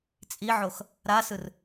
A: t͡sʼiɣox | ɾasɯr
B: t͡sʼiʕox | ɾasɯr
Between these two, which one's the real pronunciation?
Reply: B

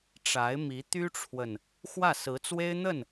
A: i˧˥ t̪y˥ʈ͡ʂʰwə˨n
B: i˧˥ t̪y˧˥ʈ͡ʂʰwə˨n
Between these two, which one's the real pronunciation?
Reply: A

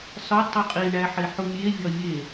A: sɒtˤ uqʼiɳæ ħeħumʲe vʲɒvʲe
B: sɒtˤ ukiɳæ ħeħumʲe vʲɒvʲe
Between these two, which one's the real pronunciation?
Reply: A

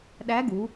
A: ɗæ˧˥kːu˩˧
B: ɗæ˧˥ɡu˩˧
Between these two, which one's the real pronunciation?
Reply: B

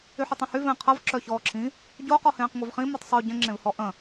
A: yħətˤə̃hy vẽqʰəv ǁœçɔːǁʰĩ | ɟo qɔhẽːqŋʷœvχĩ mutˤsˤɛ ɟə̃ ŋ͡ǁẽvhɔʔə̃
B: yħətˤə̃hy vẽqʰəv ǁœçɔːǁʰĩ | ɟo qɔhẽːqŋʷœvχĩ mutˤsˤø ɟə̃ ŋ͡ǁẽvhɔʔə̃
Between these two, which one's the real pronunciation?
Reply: B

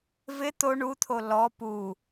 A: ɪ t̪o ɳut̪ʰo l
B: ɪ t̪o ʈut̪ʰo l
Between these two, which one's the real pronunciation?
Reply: A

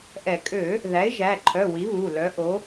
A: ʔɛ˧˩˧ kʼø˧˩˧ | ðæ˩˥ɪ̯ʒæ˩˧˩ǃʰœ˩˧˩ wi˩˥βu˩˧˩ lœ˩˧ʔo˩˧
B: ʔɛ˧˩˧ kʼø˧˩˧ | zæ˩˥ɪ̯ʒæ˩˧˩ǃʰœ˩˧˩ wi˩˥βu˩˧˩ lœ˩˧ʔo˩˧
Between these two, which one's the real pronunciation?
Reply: A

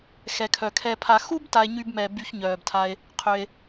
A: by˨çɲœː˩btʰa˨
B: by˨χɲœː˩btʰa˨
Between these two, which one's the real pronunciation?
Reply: A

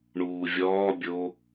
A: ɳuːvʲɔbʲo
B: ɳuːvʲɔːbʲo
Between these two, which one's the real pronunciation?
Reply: B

